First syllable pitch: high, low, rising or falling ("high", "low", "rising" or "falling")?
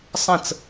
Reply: falling